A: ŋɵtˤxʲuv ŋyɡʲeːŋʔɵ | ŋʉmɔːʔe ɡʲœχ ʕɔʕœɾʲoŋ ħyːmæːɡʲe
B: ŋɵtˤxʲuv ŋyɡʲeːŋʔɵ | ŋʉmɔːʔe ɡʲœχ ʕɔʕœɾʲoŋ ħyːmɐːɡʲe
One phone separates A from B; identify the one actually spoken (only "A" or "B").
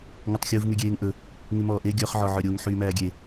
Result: A